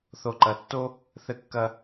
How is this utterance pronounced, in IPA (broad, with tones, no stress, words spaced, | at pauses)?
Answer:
θo˨ǃɐ˨tːo˦ | θɘ˧kːɐ˧